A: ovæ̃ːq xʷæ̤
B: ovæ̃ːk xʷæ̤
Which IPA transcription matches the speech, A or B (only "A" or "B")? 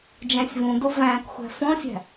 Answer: B